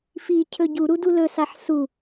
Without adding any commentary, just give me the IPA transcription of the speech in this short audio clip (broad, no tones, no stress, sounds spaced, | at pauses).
f i cʰ ɵ ɟ u ɾ u d u l ɵ s a ħ s u